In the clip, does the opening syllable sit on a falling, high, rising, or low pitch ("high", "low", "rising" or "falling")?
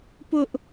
high